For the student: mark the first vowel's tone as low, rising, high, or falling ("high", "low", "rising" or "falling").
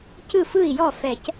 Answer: falling